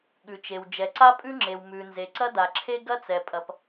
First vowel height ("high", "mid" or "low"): high